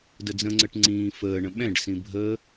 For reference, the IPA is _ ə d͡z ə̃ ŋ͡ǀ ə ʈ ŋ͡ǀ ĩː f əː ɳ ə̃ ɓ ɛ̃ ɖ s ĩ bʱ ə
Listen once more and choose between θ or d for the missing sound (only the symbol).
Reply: d